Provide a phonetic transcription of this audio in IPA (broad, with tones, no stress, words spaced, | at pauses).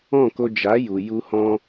ɔ̃˦˨ ko˧ d͡ʒa˨˦ju˨ ju˧hɔ̃˧